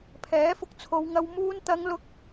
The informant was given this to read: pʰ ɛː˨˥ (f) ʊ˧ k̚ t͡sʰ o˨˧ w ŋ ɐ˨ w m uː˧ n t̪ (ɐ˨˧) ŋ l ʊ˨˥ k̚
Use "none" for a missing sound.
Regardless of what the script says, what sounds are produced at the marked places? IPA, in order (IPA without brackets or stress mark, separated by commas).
f, ɐ˨˧